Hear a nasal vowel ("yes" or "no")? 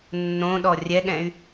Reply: yes